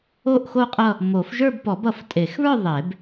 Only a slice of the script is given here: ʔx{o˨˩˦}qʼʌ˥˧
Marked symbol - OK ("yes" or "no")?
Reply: no